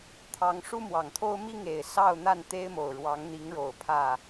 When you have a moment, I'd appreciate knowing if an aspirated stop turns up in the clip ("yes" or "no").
yes